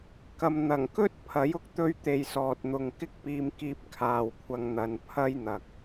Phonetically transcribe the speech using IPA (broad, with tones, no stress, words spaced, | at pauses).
kɐ˧m n̪ɐ˨˩ŋkɵ˥t̚ pʰɐ˨˥jʊ˧k̚ t̪ɵ˥ɥt̪e˧jsɔː˨t̚n̪ʊ˨ŋ kɪ˥k̚piː˧mkiː˧p̚ kʰaː˨wkʷʰɐ˧ŋn̪ɐ˨˧n pʰɐ˥jn̪ɐ˨k̚